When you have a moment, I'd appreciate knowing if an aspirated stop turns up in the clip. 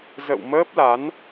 no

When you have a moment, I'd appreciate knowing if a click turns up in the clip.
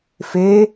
no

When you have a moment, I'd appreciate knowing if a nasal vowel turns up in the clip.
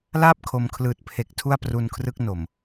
no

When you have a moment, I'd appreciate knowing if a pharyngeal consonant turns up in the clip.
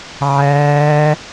yes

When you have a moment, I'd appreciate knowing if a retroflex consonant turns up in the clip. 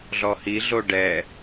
yes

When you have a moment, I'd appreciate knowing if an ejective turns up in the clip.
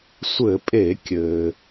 yes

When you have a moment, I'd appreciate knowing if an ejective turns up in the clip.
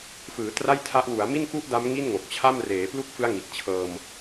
no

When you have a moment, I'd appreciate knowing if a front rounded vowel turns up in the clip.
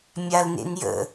no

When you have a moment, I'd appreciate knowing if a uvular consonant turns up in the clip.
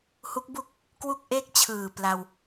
no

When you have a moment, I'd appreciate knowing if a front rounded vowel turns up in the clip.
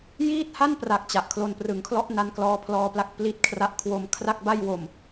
no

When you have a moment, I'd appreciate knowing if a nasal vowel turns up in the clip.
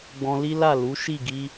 yes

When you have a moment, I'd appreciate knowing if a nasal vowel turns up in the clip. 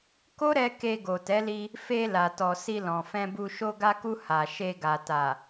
yes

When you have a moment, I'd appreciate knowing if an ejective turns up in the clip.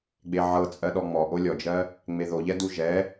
yes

